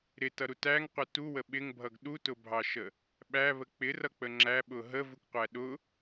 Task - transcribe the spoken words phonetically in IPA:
ɾ ɪ t ʌ ɾ u t æ ŋ qʷ ɪ t u w ə ɓ ɪ ŋ bʱ ʌ ɡ ɗ u t ʊ bʱ ɑ ʃ ə | ɓ æ β ə k͡p ɪ r ʌ k͡p ə ŋ͡ǁ æ ɓ ʊ ɦ ə v u k qʷ æ ɗ ʊ

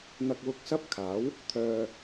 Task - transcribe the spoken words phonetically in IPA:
n̪ ɐ˨ k̚ w ʊ˨ k̚ s ɐ˧ p̚ kʰ aː˨˥ w | t̪ʰ œː˧

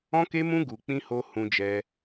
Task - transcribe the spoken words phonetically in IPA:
ɔ̃˦ k e˦ m ũ˦ ɡ u˧ k͡p ĩ˦ h o˦ h ũ˧ d͡ʒ ɛ˧

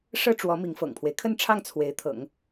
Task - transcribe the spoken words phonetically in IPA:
ʂ ɤ˥ ʈ͡ʂ w ɔ˧˥ m i˧˥ ŋ f ɤ̰˨˩ ŋ pʰ w e˦ ɪ̯ kʰ ə˥˧ n ʈ͡ʂʰ ɑ˥˩ ŋ t͡sʰ w e˧˥ ɪ̯ t̪ʰ ɤ̰˨˩˦ ŋ

